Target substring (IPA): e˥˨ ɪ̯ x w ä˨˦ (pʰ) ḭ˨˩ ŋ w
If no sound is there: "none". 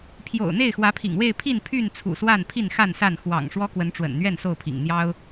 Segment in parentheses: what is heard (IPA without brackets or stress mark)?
pʰ